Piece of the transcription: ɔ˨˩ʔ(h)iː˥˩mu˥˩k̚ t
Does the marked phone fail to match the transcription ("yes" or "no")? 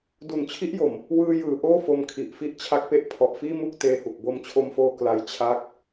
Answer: yes